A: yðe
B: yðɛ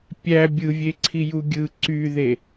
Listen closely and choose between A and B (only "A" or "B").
A